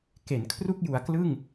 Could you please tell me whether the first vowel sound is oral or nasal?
oral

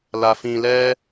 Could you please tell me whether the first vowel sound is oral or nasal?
oral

